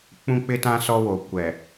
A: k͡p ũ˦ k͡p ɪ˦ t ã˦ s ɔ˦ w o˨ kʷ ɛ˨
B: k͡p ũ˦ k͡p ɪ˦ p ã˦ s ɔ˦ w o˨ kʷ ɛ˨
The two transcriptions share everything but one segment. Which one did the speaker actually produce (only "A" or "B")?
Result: A